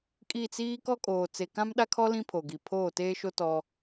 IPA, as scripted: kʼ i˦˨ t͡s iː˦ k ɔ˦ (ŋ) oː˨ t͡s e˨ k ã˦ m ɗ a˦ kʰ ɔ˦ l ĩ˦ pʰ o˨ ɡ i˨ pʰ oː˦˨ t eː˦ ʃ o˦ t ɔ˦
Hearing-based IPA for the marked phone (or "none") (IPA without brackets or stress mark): kʼ